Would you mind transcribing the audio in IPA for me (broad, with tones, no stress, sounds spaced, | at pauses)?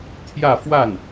t̪ʰ j ä˥˧ f w a˥˩ n